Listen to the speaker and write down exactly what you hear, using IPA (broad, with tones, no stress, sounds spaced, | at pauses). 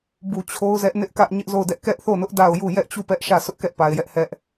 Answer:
b u˨ t͡ɕʰ o˦ ʊ̯ z ɛ˦ ʔ n ɪ˦ ʔ k ä˦ ʔ ɲ ɪ˦ ʔ z o˦˨ ʊ̯ d ɛ˦ ʔ k ɛ˦ ʔ θ o˦˨ n ʊ˦ ʔ d a˦˨ ʊ̯ j u˦˨ j ɛ˦ ʔ t͡ɕ u˦˨ p ɛ˦ ʔ ʃ ä˦˨ sʰ ʊ˦ ʔ k ɛ˦ ʔ p a˨ ɪ̯ j ɛ˦ ʔ h ɛ˦ ʔ